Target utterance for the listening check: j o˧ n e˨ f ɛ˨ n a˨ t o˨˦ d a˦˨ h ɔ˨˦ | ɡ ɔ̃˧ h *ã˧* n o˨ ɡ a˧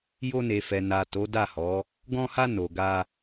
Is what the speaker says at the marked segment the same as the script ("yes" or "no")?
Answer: no